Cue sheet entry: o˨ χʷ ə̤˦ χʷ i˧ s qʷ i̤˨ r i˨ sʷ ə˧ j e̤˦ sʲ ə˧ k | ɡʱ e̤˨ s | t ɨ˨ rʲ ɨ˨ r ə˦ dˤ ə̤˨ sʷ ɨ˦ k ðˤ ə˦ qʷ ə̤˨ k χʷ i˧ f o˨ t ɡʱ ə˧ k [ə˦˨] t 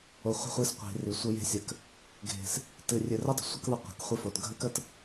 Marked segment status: correct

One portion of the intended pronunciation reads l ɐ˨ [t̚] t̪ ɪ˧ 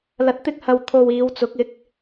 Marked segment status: correct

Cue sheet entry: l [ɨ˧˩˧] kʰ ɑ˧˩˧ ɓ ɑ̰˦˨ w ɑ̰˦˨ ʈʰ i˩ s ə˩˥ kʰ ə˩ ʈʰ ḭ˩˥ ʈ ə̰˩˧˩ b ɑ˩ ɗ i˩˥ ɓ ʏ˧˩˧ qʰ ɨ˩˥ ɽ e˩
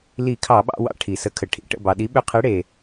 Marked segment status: incorrect: i˧˩˧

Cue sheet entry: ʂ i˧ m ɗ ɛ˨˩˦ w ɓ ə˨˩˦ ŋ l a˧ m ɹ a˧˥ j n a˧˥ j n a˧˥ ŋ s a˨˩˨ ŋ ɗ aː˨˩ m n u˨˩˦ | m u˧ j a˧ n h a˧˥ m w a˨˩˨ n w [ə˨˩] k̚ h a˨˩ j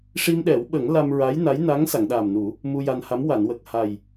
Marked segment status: correct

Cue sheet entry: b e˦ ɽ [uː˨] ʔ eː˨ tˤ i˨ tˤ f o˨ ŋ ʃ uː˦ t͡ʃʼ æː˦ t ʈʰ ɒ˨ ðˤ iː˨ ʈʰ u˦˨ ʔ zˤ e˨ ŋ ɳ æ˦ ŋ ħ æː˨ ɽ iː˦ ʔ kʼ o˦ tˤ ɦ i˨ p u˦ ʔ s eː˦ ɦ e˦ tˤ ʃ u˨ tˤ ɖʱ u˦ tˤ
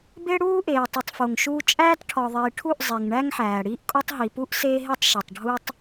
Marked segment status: incorrect: uː˦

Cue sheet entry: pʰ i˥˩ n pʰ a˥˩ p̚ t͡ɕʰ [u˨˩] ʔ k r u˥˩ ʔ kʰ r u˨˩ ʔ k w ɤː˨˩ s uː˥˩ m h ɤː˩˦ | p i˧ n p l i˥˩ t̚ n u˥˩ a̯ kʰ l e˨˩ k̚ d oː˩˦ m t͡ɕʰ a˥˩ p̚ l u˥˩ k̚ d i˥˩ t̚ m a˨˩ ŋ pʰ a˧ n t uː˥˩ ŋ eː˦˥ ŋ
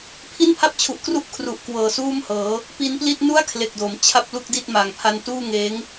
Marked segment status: correct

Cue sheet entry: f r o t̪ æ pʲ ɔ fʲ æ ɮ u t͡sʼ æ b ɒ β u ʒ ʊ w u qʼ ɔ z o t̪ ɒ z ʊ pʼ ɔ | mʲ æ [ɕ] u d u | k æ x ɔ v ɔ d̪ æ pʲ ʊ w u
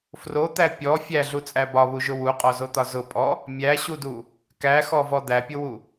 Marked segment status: correct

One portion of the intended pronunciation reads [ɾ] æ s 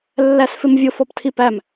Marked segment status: incorrect: lː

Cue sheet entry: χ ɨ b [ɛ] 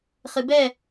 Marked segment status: correct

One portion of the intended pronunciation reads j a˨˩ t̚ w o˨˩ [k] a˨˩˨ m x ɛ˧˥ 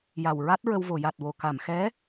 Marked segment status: correct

